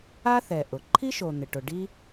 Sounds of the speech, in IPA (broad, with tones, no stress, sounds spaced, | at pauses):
a˥ θ ɛ˩ ʔ ʊ˩ ǃʰ i˥ ʃ o˩ n̪ ɪ˩ ʈ ʊ˩ ɖ i˥